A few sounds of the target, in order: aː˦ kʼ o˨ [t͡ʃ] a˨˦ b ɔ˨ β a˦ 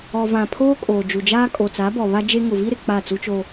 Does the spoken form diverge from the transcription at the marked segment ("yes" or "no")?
yes